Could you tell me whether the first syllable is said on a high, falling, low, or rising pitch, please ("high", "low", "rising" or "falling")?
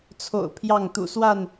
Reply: low